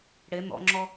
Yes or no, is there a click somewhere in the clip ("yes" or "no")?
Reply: yes